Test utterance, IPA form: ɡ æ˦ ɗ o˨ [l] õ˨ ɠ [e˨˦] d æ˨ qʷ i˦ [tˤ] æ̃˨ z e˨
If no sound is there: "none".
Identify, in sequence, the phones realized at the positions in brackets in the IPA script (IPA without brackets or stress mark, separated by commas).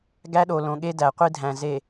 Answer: l, e˦, dʱ